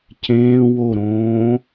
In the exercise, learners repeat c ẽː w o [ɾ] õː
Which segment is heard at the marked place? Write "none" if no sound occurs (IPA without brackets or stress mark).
ɾ